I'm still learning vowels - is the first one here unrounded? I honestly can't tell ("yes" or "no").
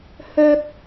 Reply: no